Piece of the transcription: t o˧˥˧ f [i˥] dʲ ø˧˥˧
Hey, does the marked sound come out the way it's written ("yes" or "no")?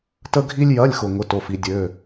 yes